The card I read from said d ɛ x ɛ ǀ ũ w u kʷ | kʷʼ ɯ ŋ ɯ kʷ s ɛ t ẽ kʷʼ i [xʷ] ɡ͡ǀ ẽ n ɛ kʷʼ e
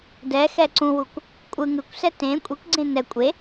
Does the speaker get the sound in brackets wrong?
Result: yes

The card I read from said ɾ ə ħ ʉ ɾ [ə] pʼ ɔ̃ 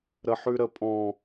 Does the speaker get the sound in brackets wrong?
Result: no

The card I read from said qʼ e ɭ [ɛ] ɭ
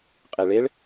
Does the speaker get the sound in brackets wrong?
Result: yes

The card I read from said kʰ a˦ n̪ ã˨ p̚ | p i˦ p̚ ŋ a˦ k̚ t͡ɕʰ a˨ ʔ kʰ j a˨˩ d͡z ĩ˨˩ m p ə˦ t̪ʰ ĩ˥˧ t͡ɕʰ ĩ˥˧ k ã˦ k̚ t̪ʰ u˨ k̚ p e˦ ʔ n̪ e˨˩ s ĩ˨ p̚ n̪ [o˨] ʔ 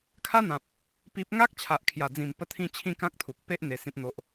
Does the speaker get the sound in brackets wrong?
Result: no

